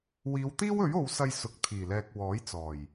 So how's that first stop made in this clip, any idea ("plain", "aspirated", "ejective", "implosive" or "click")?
plain